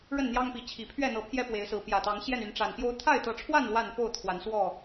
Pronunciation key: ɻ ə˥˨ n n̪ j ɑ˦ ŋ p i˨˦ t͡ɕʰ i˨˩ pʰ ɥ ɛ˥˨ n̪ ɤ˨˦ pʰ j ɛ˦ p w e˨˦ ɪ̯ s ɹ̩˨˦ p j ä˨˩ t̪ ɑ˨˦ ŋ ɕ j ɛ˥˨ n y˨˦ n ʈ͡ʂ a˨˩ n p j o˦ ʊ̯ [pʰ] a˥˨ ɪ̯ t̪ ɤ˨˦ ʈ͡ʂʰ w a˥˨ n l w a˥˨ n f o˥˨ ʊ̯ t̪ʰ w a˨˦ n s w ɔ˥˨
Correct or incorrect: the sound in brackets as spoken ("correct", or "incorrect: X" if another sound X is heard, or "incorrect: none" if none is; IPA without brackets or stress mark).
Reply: incorrect: t̪ʰ